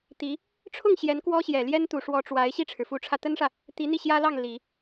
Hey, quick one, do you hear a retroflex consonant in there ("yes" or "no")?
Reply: yes